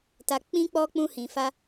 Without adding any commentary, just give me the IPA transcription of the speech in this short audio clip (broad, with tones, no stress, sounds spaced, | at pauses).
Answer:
t a˧ k͡p ĩ˦ k͡p ɔ˦ k͡p ũ˦ h ĩ˧ f a˦